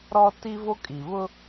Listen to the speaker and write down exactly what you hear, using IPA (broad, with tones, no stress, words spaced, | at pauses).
ɾɔ˦ ti˦vo˦kʼi˨ βʊ˦